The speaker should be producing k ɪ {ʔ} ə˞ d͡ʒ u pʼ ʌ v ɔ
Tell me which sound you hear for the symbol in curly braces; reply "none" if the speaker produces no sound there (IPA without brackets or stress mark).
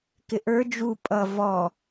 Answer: ʔ